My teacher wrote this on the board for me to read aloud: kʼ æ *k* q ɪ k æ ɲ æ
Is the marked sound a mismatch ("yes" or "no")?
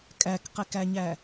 no